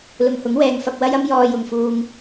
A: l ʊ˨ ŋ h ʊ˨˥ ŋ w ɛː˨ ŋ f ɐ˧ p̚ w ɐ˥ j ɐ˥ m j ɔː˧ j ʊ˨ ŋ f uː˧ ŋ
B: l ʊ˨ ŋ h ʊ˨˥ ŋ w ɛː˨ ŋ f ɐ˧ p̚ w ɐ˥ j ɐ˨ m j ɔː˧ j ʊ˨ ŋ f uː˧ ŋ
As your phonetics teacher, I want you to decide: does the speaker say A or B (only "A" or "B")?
A